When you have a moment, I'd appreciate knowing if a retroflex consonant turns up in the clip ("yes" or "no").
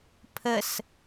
no